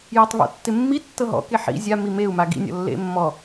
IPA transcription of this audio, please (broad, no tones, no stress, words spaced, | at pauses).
jɤtˤβɔ̰tːɪmːi tːɤɦɔ̰ke ħḭ zʲami meu̯ maɡḭnʲɔ̰ lːḛmːɔ